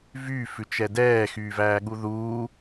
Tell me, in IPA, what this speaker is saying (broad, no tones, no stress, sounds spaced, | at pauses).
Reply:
v yː f ʉ t͡ʃ ɛ d ɛː x yː v æː ɠ u ð uː